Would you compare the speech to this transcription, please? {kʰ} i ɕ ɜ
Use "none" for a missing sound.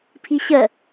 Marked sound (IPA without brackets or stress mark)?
pʰ